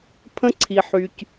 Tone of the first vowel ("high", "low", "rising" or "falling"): high